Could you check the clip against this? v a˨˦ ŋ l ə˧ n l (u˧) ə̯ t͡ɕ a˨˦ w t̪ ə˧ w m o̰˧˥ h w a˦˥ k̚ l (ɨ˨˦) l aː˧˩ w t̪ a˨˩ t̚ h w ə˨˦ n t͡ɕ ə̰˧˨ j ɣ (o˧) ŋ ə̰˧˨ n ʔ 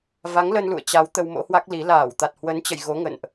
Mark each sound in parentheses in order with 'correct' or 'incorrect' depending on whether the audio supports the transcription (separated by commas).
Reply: incorrect, incorrect, incorrect